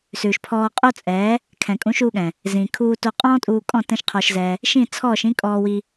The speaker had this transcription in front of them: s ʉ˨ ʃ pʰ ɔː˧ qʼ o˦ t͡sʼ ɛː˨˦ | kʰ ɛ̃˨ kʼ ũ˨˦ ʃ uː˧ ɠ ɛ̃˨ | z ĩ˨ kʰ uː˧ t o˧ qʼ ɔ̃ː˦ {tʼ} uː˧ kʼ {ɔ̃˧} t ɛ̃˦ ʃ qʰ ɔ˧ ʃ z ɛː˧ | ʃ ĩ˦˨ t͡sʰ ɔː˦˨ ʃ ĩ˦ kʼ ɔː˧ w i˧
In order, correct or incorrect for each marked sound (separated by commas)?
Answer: correct, incorrect